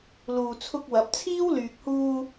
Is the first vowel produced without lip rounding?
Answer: no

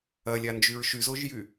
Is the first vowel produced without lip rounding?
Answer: yes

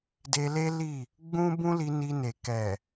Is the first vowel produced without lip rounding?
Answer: yes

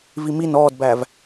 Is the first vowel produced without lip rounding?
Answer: yes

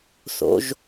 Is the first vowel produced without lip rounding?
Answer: no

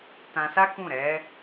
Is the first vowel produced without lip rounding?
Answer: yes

